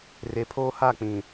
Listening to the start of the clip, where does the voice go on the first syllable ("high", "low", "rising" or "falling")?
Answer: low